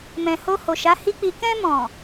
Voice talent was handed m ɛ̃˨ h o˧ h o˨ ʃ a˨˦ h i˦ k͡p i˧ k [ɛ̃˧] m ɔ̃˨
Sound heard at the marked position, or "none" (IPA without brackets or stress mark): ɛ̃˧